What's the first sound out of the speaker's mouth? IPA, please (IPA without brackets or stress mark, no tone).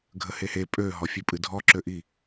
ɡʱ